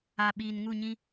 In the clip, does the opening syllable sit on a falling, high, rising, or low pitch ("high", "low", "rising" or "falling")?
low